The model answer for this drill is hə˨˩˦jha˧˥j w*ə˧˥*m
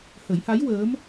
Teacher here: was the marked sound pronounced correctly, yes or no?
no